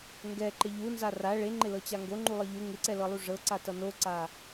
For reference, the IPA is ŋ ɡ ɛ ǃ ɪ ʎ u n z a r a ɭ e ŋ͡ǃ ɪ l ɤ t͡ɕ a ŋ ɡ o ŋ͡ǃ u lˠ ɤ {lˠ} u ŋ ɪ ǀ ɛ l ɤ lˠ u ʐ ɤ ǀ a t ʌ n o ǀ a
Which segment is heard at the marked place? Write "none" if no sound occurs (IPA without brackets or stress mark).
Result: ʎ